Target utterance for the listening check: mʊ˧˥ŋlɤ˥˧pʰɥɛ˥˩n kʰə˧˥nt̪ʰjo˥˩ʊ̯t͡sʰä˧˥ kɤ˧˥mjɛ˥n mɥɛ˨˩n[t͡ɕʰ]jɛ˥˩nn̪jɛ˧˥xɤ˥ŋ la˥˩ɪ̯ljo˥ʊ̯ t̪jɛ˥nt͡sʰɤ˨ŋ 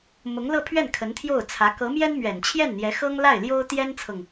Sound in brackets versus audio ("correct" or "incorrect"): correct